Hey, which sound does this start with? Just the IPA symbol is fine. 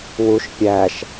w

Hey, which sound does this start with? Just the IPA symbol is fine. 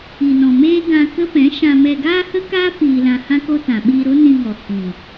i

